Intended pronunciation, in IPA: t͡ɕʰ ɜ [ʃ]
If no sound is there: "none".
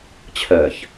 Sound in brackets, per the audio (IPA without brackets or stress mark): ç